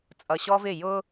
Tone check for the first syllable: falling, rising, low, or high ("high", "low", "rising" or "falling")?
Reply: low